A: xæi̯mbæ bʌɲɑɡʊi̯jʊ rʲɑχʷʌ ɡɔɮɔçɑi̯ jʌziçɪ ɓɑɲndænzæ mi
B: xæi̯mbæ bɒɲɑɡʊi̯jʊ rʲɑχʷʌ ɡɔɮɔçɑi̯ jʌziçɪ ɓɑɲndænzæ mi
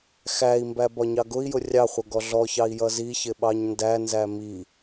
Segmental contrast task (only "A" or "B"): B